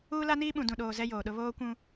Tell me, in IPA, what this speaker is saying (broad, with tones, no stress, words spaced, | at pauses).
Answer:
uː˦la˦niː˦ ɓũ˨dũ˨ɗoː˨ zɛ˦joː˨ɗʊ˦ βoː˦kʷũ˦